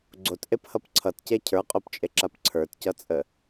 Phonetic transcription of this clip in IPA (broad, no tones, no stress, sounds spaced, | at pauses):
ɡ͡ǀ o t ʔ e p h ʌ p ǀʰ ʌ t c e cʰ ə˞ qʼ o p t͡ʃʼ e ǁ a p ǀʰ ə˞ t c ʌ t͡sʼ ə